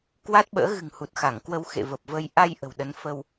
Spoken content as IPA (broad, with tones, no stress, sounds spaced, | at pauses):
k w a˦˥ t̚ ɓ ə̰ː˧˥ ɣ ɨ̤˨˩ ŋ h u˨˩ t̚ x a˧˩ ŋ k w ə˧ w x ḛ˧˨ v ə˨˩ p̚ v əː˧ j ʔ a˧ j ʔ ə̤˨˩ w ɗ ə˨˦ n f ə˧ w